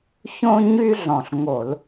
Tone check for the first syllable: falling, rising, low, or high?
high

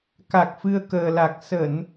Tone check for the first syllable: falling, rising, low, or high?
low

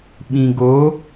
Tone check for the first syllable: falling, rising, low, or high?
low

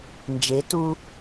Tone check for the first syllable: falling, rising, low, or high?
rising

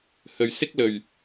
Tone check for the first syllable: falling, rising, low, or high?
low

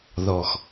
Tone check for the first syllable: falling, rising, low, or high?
low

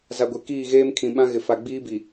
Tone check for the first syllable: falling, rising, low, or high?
low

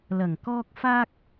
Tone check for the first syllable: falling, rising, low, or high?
low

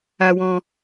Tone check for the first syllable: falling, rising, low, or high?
high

